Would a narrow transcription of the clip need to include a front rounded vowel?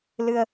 no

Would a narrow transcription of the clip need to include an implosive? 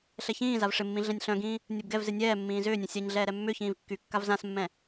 no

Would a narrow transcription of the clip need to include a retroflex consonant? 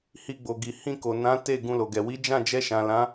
no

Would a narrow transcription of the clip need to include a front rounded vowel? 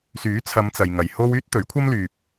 yes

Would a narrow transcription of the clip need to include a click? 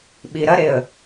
no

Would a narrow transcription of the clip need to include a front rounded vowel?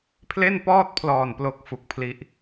no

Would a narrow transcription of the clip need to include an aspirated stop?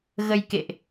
no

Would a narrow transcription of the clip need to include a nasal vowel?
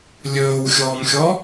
no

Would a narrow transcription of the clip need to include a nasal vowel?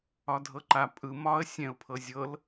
yes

